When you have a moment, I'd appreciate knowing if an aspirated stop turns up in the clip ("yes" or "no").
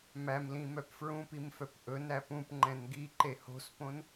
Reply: no